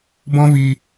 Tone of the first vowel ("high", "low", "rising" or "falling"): high